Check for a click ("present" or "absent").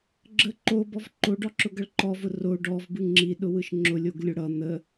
present